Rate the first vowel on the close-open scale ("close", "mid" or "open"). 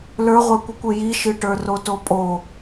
mid